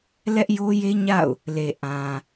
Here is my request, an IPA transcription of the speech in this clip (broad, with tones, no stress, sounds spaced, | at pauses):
l ɛ˦ ʔ j o˦ j e˦ ɲ a̰˦˨ ʊ̯ | l e˨ ʔ ã˨